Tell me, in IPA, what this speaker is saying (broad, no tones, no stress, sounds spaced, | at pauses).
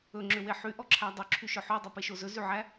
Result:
ɵ ŋ͡ǁ ø w e ħ y ʔ ɔ ǁʰ æ dˤ ʉ ǁʰ y ʃ œ ħ ʉ dˤ e p e ʃ o z ɵ z y ʕ æ